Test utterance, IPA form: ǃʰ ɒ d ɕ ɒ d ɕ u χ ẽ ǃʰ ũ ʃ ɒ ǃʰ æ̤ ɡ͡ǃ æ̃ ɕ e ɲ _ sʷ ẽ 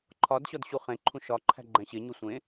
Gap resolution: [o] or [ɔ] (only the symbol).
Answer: o